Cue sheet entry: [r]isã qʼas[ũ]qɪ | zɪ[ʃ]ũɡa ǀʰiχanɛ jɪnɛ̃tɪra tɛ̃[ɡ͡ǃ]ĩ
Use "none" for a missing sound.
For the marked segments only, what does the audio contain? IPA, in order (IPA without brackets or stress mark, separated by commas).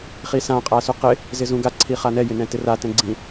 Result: χ, u, z, ɡ͡ǀ